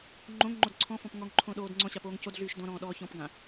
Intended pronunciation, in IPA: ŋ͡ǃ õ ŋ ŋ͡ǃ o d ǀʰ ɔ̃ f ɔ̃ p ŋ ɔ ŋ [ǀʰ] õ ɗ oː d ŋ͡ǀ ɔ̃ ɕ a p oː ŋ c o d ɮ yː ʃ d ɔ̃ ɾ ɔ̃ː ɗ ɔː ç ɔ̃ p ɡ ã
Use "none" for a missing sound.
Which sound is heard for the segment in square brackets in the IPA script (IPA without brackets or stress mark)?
ǃʰ